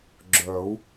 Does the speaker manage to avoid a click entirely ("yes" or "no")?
no